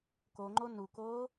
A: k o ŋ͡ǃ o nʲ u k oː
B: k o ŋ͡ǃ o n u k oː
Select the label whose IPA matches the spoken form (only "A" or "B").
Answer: B